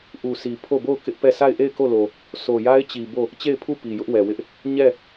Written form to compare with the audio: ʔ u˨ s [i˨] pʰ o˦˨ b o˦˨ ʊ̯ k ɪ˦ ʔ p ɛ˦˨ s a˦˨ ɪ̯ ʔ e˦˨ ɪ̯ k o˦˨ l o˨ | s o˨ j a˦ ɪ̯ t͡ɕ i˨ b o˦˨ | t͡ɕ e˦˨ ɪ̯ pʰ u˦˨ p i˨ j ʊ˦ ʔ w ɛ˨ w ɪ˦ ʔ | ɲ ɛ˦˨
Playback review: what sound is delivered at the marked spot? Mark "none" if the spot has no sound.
i˨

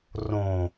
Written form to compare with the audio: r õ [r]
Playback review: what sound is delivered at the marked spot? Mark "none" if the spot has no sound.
none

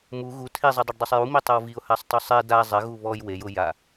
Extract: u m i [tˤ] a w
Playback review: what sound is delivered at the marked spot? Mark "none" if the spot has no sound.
tˤ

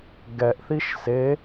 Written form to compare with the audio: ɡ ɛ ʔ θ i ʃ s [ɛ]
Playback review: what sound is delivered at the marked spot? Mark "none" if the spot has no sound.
e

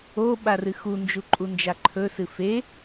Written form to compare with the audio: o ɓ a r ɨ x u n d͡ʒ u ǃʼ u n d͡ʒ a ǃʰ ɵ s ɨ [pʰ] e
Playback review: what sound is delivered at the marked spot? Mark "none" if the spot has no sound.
f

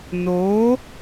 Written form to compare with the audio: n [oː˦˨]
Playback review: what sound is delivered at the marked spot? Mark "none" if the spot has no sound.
oː˨˦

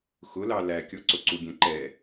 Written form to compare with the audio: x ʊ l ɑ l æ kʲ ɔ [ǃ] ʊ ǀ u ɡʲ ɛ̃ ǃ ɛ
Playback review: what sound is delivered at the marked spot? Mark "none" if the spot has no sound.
ǀ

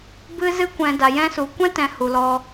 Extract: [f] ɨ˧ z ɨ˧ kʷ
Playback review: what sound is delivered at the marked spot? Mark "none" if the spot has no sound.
b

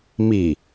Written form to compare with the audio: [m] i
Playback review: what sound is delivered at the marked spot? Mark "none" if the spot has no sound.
m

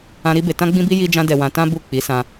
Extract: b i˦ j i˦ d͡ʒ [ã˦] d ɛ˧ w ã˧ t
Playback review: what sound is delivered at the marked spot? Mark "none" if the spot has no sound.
ã˦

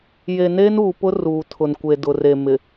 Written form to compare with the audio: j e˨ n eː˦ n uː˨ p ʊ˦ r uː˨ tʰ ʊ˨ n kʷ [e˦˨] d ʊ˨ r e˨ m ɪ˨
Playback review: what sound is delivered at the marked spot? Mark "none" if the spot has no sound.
e˨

